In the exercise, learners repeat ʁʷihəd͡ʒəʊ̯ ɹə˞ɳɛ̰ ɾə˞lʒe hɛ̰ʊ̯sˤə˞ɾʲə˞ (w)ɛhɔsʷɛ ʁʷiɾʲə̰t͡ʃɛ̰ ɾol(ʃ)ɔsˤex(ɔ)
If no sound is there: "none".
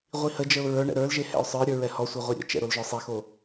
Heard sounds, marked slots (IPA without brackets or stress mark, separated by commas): ɹ, ʒ, o